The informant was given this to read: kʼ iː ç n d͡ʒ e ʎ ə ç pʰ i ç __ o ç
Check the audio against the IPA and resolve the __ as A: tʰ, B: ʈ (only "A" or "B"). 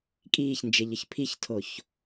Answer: A